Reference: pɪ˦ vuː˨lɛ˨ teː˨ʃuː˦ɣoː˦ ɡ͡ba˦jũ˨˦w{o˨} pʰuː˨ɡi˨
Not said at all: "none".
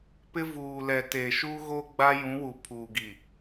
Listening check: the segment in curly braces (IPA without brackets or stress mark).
u˨